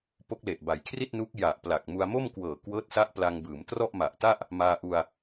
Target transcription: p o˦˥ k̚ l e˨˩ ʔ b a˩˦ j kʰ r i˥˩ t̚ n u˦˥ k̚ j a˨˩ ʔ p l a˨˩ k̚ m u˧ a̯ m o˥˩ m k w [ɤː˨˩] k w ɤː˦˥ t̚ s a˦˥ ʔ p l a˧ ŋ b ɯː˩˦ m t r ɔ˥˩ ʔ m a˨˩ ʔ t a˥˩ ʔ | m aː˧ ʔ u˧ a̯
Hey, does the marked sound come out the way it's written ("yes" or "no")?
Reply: yes